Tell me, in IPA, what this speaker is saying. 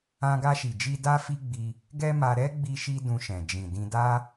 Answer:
ã˧ ɡ a˧ ʃ i˨ d͡ʒ i˧ d a˦ f i˦ ɡ͡b i˧ | ɡ ɛ˦ m a˧ ɾ ɛ˦ ɡ͡b i˧ ʃ i˧ d ũ˧ ʃ ɛ̃˨ d͡ʒ ĩ˨ d ĩ˧ d a˦

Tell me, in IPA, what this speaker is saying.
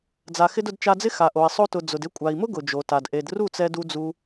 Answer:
d͡z a˨ x ɪ˧ d ʊ˧ d t͡ʃ a˧ d͡z ɪ˦ x a˨ ʔ o˨ i̯ sˤ o˧ t ʊ˨ d͡z ʊ˨ d ɪ˦ kʷʼ a˨ i̯ m ʊ˦ ɡ ʊ˨ d͡ʒ o˨ t a˨ d ʔ e˨ d r u˦˨ t͡s ɛ˧ d u˧ d͡z u˧

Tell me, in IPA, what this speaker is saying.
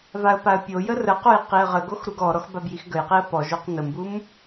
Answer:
v a ə̯ p a ə̯ pʲ o j ə r ə q o j q i ə̯ ʁ ə ɡ o x ɾ u ɡ ɔ ɾ ɔ x b a b j i x ɡ ə j q i ə̯ p ɔ ʒ o q n ə m b u m

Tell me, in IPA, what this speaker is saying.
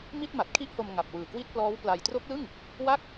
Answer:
m i˥˩ t̚ m a˨˩ t̚ kʰ i˥˩ ʔ h o˧ m ŋ a˨˩ p̚ w ɯː˨˩ k w i˥˩ t̚ p l ɔː˦˥ w p l a˧ j t r o˦˥ k̚ l ɯ˥˩ ŋ | w a˥˩ k̚

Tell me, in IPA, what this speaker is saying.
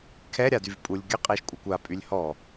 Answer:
kʰ ɛ ɾʲ a d y v pʼ u lʲ ɡʲ ə qʼ e ʃ kʷʼ a kʷ a pʼ y lʲ h ɔ

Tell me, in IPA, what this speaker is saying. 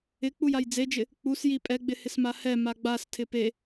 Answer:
ɪ k͡p u j a j d͡z e d͡ʒ ɪ | k͡p u s j i pʼ ɛ ɡ͡b ɪ h ɪ s m a h ɛ m a ɡ͡b a s tʰ ɪ p e

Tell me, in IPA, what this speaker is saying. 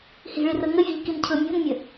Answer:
h i̤ ɭ i r ɤ ŋ ə vʲ e ʎ k i n cʰ ɤ mʲ o̤ n mʲ ə

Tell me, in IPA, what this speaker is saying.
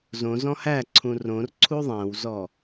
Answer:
z õ z ɔ̃ h æ ǀʰ ũ r õ r ǀʰ u ðˤ æ̃ w z ɔ

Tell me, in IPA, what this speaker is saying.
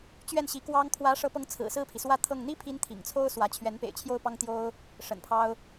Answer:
t͡ɕ ɥ ɛ˥˩ n ɕ i˧˥ k w ɑ˥ ŋ kʰ w ä˧˥ ʂ ɤ˧˥ p ɤ˧˥ ŋ t͡sʰ ɹ̩˨˩ s ɹ̩˥˩ pʰ i˩ s w ä˥ t̪ʰ ɤ˥˩ ŋ n̪ i˥ pʰ i˧˥ n t̪ʰ ḭ˨˩ ŋ t͡sʰ o˥ ʊ̯ s w ä˧˥ t͡ɕʰ ɥ ɛ˧˥ n p ḛ˨˩ ɪ̯ t͡ɕʰ j o˥˩ ʊ̯ p ɑ˥ ŋ t̪ j o˥ ʊ̯ | ʂ ə̰˨˩ n pʰ ɑ˥ ʊ̯

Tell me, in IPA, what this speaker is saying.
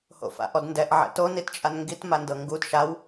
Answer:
h o̰ f a̰ ʔ ɔ d n d ɛ ʔ ʕ ɛ̰ t o n i t t͡ʃʼ a n ŋ ɡ i t m a n d ɤ ŋ ɡ u d ʃ a w

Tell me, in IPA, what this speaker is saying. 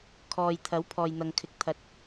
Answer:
kʰ ɔː˨ j t̪ʰ ɐ˨˥ w pʰ ɔː˨ j n̪ ɐ˨ ŋ kʰ ɪ˨˥ k̚ t̪ʰ ɐ˨ t̚

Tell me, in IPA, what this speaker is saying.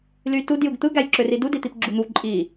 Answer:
l y t u d j ɯ ɡ t̪ ɯ ɡ æ j ǁ ø r i d u d i t̪ i p ɡ͡ǁ u n̪ u ǃʼ i

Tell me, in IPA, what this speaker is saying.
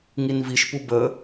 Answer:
ŋ i n v i ʃ p u b ə

